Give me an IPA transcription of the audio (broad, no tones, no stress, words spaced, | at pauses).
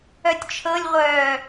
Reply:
œtʲt͡ʃʰɤlʲʁʷœː